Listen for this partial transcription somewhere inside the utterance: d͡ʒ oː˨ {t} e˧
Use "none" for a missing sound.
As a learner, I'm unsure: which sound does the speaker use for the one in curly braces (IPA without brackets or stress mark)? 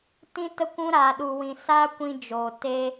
t